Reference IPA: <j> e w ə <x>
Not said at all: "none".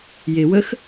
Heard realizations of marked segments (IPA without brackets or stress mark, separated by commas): j, x